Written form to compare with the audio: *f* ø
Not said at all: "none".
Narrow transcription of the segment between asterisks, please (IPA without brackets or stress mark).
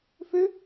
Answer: f